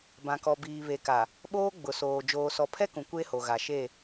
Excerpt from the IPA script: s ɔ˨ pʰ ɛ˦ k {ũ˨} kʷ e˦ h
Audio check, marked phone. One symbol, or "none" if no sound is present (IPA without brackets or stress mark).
ũ˨